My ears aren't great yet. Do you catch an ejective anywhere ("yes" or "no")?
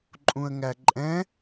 yes